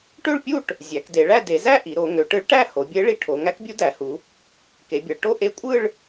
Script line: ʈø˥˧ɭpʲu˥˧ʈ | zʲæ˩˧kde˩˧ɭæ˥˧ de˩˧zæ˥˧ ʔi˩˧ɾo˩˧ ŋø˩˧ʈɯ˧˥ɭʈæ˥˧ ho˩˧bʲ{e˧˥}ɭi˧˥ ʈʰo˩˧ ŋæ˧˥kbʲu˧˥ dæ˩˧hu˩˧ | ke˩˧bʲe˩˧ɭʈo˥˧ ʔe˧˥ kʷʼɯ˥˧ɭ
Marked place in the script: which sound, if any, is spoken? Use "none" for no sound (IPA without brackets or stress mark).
e˧˥